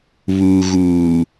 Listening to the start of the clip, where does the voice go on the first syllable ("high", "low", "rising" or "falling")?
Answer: low